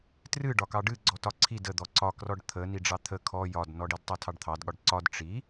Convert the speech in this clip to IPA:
t r ɨ ɖ ɒ k ɑ ɖ ɨ ɡ͡ǀ ɔ t ɒ ǀʰ i d ə d̪ ɔ ǀ ɒ k r ɔ ɖ t̪ʰ ə n i ɖ͡ʐ ɑ t̪ʰ ə kʰ ɔ j ɒ d n ɔ ɖ i d tˤ a tʰ ɑ ɖ t̪ʰ ɑ d ɠ ɒ ɖ ǀ ɒ d ʈ͡ʂ i

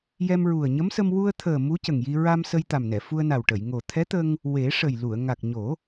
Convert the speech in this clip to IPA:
j ɛ˧ m ɹ u˨˩ ə̯ ɲ ə˧˥ m s ə˧ m w u˧ ə̯ t̪ʰ əː˨˩ m u˧˥ c ə˨˩ ŋ j i˧ ɹ a˧ m s ə˧ j t̪ a˨˩ m n ɛ˨˩˨ f u˧ ə̯ n a˨˩ w ʈ ə˨˩˨ j ŋ o˨˩ t̪ʰ ɛ˧˥ t̪ ə˧ ŋ | w e˨˩˦ ʂ ə˨˩ j l u˨˩˨ ə̯ ŋ a˨˩ k̚ ɲ o˨˩˦

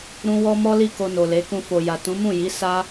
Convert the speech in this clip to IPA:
ɾ ũ˦ w ɔ˦ m ɔ˦ l i˦˨ k o˧ n o˨ l e˨˦ k ũ˧ f o˨ j a˨ t ũ˨˦ m ũ˦˨ j i˨˦ s a˦

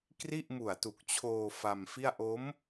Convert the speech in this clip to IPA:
k r i˥˩ ʔ m u˨˩ a̯ t u˨˩ k̚ t͡ɕʰ oː˧ f a˧ m f i˥˩ a̯ ʔ o˦˥ m

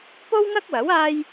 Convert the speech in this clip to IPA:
p o˥ w ŋ ɐ˥ k̚ w ɐ˨˥ w aː˥ j

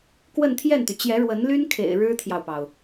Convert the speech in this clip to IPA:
k w ə˥˧ n t̪ʰ j ɛ˥˩ n t̪ y˩ t͡ɕ j ɛ˧˥ ɻ w ə˧˥ n l y˥ n kʰ ḛ˨˩ ɪ̯ ɻ ɻ̩˥ t̪ʰ j ɑ˨ ʊ̯ p ɑ˩ ʊ̯

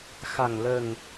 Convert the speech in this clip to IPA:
x a˨˩ ŋ l ə˨˩ ŋ

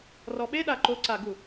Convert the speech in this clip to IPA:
r ɔ ɓ e ɗ a ǃ o ǀ a ɡ u

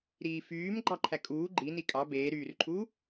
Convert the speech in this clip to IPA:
ɾ iː f yː m ɡ͡ǃ ɑ ǃʰ æ kʼ uː ɡ͡ǃ i n i kʼ ɑ b eː ɾ yː r ǃʰ uː

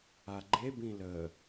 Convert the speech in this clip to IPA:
a ɡ͡ǃ e b ĩ l ə

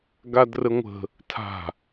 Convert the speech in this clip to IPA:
ɡ a d r ə ŋʷ ə̤ | tʰ a̤

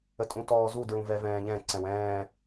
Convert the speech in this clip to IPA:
ə tʼ ũ t ɔː z u d ɹ ũ v ɛ v ɛ̃ː ʎ ɛ̃ ǀ ɛ̃ w ɛ̃ː

